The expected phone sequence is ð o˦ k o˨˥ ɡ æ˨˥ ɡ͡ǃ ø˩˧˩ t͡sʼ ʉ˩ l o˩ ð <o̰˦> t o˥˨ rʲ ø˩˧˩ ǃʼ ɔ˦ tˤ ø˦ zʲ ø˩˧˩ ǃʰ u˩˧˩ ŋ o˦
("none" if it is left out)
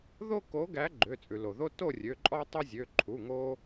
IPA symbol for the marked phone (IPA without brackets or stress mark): o˦